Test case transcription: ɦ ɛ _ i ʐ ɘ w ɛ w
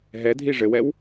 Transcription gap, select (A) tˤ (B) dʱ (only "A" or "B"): B